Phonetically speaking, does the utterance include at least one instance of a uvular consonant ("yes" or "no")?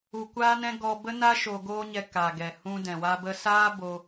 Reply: no